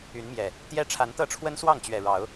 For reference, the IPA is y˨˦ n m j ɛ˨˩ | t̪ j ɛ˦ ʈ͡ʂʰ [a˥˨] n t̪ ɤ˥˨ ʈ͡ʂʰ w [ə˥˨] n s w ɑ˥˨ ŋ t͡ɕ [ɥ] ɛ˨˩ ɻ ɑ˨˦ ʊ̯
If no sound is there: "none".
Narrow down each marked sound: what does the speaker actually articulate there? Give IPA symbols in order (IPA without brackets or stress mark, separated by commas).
a˨˦, ə˦, ɥ